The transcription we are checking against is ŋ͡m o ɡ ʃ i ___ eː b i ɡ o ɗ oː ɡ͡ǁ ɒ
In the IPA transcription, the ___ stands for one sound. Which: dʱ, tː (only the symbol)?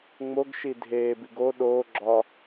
dʱ